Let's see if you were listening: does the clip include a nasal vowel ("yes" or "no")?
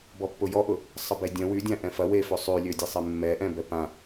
yes